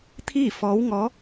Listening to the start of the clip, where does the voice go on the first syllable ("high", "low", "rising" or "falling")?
falling